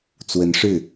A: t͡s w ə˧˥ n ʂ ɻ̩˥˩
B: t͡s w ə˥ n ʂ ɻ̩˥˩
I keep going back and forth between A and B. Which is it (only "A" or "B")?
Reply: A